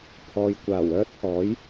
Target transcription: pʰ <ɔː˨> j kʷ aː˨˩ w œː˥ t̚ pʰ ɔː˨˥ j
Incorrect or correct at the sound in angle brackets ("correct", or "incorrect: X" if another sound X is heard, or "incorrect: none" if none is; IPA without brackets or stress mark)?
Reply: correct